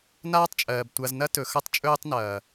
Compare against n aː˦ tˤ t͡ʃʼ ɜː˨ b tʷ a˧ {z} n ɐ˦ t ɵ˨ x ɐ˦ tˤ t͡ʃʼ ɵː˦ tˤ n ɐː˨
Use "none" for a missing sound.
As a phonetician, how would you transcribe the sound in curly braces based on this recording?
z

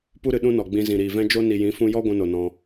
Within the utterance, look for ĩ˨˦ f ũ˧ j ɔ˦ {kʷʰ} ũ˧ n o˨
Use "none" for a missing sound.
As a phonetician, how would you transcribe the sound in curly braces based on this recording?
ɡʷ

